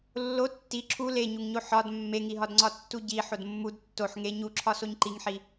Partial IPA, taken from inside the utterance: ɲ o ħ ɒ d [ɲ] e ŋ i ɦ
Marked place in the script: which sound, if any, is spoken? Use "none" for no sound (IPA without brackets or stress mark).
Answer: mː